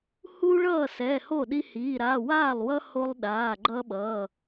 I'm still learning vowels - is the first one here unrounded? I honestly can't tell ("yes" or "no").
no